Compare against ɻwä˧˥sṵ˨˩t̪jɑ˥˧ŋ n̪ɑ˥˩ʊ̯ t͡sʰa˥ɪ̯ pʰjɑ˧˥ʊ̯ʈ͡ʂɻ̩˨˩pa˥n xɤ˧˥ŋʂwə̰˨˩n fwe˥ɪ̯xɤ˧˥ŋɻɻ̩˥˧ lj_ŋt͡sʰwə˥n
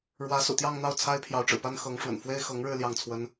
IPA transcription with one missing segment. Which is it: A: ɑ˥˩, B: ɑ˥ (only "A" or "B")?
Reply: A